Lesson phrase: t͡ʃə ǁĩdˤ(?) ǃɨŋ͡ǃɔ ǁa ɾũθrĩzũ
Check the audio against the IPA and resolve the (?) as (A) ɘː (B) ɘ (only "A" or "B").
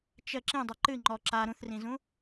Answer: B